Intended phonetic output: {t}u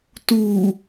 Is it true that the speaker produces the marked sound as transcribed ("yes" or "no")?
yes